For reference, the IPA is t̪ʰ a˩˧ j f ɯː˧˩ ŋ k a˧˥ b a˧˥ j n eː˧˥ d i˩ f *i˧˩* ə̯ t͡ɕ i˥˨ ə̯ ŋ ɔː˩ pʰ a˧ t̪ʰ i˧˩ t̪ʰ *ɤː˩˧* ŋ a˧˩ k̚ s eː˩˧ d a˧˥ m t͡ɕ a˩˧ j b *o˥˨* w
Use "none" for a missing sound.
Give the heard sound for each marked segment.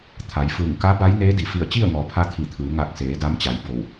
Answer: i˧˩, ɯː˩˧, o˧˩

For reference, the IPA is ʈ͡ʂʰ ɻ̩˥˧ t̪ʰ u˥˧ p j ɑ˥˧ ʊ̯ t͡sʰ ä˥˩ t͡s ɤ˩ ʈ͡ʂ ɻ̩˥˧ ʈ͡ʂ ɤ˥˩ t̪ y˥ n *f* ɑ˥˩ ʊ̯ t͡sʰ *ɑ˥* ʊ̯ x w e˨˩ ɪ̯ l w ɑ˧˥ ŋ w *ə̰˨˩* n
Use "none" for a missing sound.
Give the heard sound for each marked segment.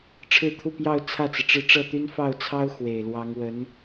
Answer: f, ɑ˥, ə˧˥

